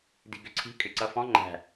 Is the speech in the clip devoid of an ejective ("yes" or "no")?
no